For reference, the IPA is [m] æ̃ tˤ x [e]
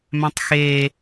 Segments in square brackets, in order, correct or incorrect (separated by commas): correct, correct